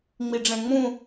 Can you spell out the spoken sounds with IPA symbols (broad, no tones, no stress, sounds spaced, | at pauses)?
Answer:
ŋ͡m i ɖ͡ʐ ɛ̃ ŋ͡m ũ